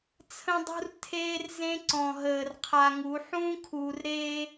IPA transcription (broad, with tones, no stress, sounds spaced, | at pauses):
t͡sʰ ə̃˦ dˤ ṳ˦ r tʰ eː˦ r z ẽ˦ ǀ ɔ̃˨ ɦ əː˨ r qʰ a˨ ŋ u˨˦ ħ ũː˦ kʰ uː˨ r ɾ eː˦